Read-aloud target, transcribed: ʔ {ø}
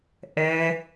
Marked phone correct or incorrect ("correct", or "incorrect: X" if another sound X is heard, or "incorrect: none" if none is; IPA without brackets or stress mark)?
incorrect: ɛ